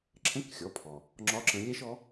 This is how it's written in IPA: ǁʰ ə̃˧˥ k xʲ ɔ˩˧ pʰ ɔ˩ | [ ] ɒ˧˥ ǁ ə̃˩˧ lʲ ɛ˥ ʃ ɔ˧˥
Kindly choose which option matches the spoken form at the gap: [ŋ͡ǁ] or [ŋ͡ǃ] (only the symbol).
ŋ͡ǁ